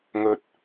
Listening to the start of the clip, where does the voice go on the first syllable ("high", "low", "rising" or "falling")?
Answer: low